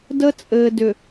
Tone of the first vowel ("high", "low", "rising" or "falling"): high